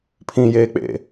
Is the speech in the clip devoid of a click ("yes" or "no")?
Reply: yes